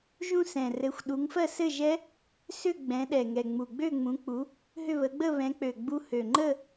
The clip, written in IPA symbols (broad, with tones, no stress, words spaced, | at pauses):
ʒũ˥˧sɛ̃˨˩rɘ˨˦xʷ ɗu˨˦ŋfɜ˥˧sɘ˥˧ʒɛ˦˥ | sʏ˥˧ ɡ͡bɛ̃˨˦ɗɛ˨˩ŋɛ˨˩ ŋ͡mu˨˩ɡ͡bø˥˧ŋ͡mũ˨˦k͡pu˨˦ | ɦʏ˥˧βə˨˦ ɡ͡bə˥˧βɛ̃˨˦k͡pø˨˩ ɡ͡bu˦˥ hø˨˩ŋ͡ǃə˥˧